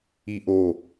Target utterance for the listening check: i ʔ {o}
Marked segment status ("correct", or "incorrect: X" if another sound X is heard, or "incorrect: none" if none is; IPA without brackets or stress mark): correct